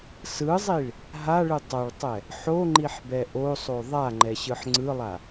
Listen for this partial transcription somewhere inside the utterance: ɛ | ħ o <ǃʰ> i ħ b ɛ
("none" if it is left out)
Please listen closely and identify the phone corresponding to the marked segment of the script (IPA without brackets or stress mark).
ŋ͡ǃ